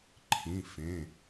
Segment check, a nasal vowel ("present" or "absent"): present